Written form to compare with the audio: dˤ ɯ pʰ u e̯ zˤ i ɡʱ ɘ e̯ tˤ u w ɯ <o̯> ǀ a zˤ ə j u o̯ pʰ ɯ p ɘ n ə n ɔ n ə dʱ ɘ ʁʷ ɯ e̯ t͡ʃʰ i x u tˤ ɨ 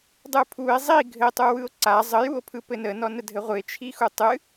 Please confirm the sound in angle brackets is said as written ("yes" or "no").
yes